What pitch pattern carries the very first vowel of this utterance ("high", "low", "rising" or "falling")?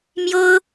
high